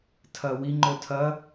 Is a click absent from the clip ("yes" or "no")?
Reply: no